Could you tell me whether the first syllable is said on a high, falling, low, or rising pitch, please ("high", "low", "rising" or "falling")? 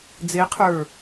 rising